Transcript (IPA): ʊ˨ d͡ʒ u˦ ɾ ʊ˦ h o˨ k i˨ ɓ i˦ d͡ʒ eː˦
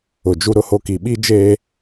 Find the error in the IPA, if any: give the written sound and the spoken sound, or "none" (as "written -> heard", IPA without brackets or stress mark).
o˨ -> o˦